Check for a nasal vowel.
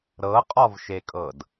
absent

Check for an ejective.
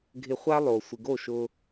absent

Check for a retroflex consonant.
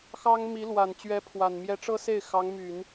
present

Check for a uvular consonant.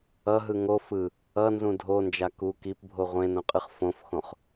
present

